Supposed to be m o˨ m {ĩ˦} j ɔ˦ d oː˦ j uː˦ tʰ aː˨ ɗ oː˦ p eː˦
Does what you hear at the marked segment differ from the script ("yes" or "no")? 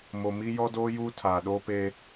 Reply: yes